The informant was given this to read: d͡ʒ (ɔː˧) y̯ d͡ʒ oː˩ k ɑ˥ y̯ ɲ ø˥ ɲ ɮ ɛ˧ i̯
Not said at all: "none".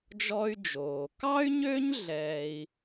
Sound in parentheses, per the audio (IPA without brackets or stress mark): ɔ˧